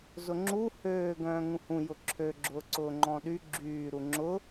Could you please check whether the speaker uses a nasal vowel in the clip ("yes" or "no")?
yes